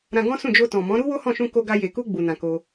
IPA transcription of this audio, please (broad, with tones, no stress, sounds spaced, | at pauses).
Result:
ɾ ã˧ ɡ ɔ̃˦ s ũ˦˨ d͡ʒ o˧ t ɔ̃˨ m ɔ̃˨˦ ɾ u˦ w o˦ h ɔ̃˦˨ ʃ ũ˧ k o˧ ɡ a˧ j e˨ k u˧ ɡ͡b u˨ n ã˨ k o˧